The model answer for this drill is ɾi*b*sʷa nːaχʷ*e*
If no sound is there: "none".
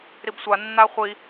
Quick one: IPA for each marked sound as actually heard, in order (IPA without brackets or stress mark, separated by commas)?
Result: b, i